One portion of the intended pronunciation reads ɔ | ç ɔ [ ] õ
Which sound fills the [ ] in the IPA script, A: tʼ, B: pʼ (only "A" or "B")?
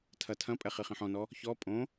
B